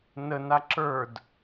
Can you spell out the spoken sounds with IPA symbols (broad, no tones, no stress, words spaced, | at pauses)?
nəna ǁə˞d